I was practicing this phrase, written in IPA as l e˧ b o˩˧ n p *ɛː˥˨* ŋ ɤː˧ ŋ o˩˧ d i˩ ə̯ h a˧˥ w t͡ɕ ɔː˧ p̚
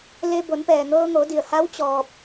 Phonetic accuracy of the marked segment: incorrect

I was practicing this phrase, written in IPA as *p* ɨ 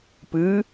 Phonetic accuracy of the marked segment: correct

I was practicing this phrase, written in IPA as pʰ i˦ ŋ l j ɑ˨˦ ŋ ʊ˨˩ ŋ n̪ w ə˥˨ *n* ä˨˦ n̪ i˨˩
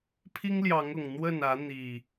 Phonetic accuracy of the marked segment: correct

